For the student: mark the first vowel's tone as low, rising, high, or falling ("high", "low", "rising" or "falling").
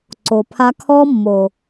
low